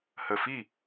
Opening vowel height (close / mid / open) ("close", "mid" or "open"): mid